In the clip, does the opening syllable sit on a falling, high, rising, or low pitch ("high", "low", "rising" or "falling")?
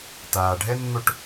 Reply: low